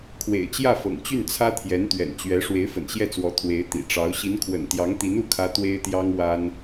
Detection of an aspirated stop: present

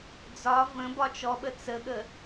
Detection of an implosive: present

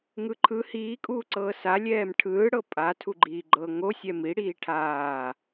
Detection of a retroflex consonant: present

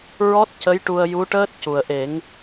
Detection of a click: absent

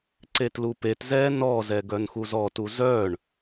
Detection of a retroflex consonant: present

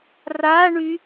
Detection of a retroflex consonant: present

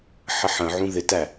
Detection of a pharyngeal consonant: present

